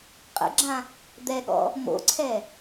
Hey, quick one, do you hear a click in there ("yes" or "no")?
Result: yes